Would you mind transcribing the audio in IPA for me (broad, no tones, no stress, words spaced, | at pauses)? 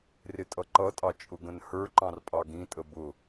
rɪtʼʌǃʌtʼɑ t͡ʃʼʊɡə̃nhə˞ǃɑ̃r pʼɑɡĩtʼə bʊ